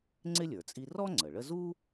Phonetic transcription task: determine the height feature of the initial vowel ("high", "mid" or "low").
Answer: high